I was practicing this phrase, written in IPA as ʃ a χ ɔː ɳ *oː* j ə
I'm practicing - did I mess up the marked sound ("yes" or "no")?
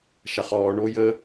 no